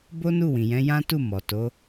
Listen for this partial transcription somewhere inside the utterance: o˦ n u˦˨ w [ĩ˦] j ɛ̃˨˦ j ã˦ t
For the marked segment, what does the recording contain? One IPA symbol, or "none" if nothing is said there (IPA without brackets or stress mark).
ĩ˨